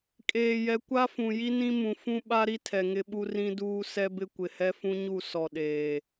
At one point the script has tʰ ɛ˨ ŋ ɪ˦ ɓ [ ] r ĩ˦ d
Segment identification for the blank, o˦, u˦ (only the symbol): u˦